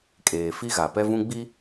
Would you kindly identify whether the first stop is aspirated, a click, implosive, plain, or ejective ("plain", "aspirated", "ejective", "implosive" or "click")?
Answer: ejective